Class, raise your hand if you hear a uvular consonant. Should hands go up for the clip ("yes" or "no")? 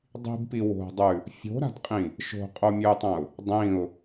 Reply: yes